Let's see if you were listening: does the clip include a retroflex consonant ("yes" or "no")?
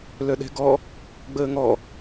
no